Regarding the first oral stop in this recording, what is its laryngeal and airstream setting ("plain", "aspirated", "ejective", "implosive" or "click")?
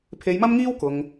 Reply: aspirated